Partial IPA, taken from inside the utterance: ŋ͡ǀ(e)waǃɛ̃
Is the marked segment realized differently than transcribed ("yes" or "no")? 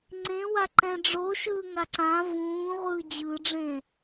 yes